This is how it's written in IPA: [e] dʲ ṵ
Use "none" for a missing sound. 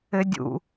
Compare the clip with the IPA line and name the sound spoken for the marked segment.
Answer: ɘ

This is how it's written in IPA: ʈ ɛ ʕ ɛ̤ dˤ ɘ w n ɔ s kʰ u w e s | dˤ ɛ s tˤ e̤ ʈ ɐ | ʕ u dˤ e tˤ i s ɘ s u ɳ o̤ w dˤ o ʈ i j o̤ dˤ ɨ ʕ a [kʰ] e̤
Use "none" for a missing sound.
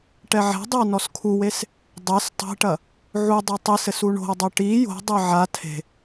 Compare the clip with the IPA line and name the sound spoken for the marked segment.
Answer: tʰ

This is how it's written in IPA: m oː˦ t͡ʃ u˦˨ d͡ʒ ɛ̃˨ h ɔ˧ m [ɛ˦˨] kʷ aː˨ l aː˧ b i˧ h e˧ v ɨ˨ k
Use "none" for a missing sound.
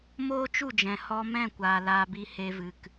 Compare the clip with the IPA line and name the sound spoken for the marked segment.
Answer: ɛ̃˦˨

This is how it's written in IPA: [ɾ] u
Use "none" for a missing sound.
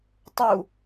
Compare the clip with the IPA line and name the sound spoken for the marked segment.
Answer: tˤ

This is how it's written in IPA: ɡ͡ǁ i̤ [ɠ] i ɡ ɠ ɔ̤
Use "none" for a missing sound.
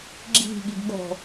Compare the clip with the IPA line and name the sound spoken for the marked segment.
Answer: ɠ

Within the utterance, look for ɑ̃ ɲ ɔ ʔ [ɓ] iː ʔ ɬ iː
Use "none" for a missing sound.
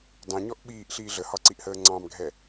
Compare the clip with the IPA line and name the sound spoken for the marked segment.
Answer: ɓ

